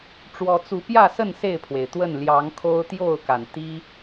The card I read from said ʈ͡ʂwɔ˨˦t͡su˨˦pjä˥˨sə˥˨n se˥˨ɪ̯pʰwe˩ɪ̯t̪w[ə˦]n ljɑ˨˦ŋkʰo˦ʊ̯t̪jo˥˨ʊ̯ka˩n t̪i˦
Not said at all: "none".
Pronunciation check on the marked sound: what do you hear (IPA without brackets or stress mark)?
ə˥˨